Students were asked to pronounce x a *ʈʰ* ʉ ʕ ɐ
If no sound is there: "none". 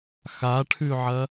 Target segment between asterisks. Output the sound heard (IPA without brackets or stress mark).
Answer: ʈʰ